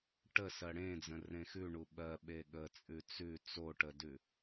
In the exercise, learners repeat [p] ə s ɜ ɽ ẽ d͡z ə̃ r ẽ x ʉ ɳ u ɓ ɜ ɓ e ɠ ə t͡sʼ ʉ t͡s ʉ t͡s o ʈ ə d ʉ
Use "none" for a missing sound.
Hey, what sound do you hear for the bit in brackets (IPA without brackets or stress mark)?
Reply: ʈ